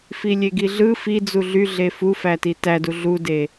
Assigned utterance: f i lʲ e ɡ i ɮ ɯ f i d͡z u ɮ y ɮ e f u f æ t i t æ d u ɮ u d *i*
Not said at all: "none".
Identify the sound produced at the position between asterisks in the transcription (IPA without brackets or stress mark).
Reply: e